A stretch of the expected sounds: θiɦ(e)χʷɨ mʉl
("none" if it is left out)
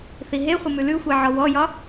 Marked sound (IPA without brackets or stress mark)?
e